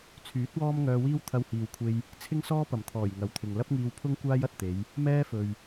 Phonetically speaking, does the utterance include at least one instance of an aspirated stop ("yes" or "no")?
yes